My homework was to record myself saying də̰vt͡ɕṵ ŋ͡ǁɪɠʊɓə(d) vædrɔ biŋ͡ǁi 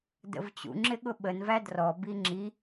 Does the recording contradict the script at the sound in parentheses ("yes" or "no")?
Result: yes